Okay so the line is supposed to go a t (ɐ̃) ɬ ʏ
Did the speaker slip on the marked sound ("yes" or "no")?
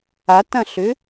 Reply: no